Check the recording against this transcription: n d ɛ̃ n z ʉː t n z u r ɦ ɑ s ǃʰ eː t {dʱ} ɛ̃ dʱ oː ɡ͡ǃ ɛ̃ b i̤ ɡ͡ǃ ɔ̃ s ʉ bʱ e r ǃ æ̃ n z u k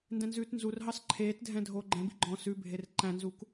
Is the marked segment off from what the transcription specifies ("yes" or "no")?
no